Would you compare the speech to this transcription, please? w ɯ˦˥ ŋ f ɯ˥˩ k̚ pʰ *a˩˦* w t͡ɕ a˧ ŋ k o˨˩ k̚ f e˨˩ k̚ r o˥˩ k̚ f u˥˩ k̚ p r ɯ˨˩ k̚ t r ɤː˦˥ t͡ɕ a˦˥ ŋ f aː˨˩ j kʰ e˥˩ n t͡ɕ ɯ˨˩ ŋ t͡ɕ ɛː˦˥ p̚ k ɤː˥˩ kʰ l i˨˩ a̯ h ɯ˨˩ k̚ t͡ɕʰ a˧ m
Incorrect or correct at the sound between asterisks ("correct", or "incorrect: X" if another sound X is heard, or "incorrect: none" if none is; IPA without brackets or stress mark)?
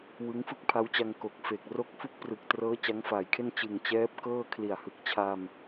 incorrect: a˦˥